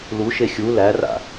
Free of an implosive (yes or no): yes